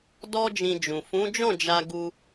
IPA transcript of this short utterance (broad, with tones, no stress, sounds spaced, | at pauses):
d ɔ˦ d͡ʒ ĩ˧ d͡ʒ ũ˨ f ũ˨˦ d͡ʒ ɔ̃˦˨ d͡ʒ a˧ ɡ u˧